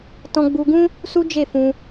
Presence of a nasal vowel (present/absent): present